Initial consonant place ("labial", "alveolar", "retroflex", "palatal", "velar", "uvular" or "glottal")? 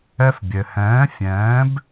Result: labial